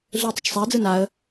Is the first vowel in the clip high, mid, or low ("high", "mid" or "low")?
high